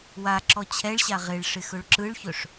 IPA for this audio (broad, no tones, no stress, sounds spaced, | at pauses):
w a ǁ ɔ t͡ɕʰ ɛ ɭ ɕ a ʁ ɪ ɭ ʂ ɪ x ɵ ɭ ǁ ɯ ɭ ç ɵ ʂ